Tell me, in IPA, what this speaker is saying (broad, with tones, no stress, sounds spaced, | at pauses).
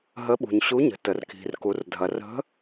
ɦ ə˨˦ ɓ ṳ˩ ɲ ɕ u˨˦ ɲ ə̤˩ t ə˩ r k i̤˩ r k u˩ r dʱ ɐ˩ r ə̤˨˦